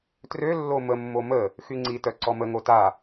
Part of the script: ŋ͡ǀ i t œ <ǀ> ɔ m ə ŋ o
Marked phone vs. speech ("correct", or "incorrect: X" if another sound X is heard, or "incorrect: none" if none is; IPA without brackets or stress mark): correct